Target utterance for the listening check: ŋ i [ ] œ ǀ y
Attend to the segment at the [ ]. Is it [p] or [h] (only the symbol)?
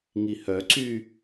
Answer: h